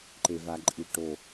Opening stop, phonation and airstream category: click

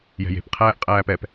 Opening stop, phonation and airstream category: plain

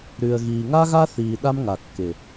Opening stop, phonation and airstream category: implosive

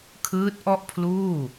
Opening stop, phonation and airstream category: aspirated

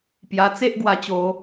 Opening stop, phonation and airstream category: plain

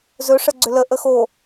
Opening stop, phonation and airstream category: click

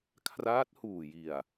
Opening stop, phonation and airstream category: aspirated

